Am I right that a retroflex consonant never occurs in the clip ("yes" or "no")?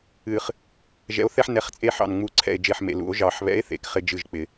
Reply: yes